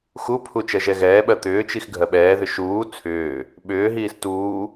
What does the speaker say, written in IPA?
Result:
x u pʰ u t͡ʃ ɜ ʒ ɛ ɣ ɛː ɓ ɜ t̪ ʏː t͡ʃ i x ɡʱ ɜ ɓ ɛː ð ʏ ʃ uː t͡sʰ ʏː | ɓ ʏː ɦ iː s t uː

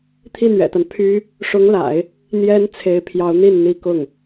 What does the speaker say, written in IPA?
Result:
t̪ʰ i˥˩ n̪ ɥ ɛ̰˨˩ t̪ a˦ n pʰ y˥ | ʂ ʊ˧˥ ŋ l a̰˨˩˦ ɪ̯ | n̪ j ɛ˧˥ n t͡sʰ e˧˥ ɪ̯ pʰ j ɑ˧˥ ʊ̯ n̪ i˥˩ n n̪ i˥ k ʊ˥˩ ŋ

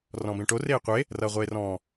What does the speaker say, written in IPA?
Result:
r ɔ̃ b ẽ ʈ o r eː qʷ e | r ʌː ʁʷ eː r ɔ̃ː

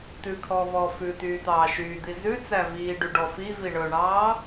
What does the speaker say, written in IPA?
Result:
t̪ ʉ kʰ ɔː v ɔː f ʉ t̪ yː t̪ ɑː ʃ yː d̪ i z ʉ t͡s æ v iː ɖ y ɖ ɔ f i v i ɳ ɵ ɳ ɑː

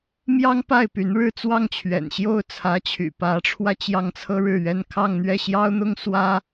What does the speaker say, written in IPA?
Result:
m j ɑ˥ ŋ p a˥˩ ɪ̯ p y˧˥ n ɻ ɻ̩˥˧ t͡s w ɑ˥˩ ŋ t͡ɕʰ ɥ ɛ̰˨˩ n ɕ j o˥˩ ʊ̯ t͡sʰ ä˧˥ t͡ɕʰ y̰˨˩ p ä˧˥ ʈ͡ʂʰ w ä˧ t͡ɕ j ɑ˥˩ ŋ t͡sʰ ɤ˥ ɻ ɻ̩˥˩ ɥ ɛ˥ n kʰ ɑ˥˧ ŋ n̪ ɥ ɛ˥˩ ɕ j ɑ˥ ʊ̯ n̪ ʊ˥ ŋ s w ä˥

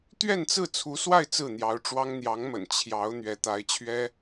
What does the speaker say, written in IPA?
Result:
t̪ ɥ ɛ˥˧ n t͡s ɹ̩˥˩ t͡sʰ u˧˥ s w a˥˧ ɪ̯ t͡s ɹ̩˥˩ n̪ j ɑ˧˥ ʊ̯ ʈ͡ʂ w ɑ˥ ŋ n̪ j ɑ˧˥ ŋ m ə̰˨˩ n t͡ɕʰ j ɑ˧˥ ʊ̯ n̪ ɥ ɛ˧˥ t̪ a˧˥ ɪ̯ t͡ɕʰ ɥ ɛ˥

